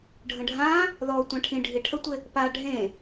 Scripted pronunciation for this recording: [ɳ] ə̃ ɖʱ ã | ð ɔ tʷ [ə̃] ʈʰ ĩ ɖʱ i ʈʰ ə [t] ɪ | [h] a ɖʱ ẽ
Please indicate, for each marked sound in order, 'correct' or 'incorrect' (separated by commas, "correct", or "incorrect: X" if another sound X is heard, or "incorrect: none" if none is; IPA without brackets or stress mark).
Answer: incorrect: ɖʱ, incorrect: ã, incorrect: tʷ, incorrect: p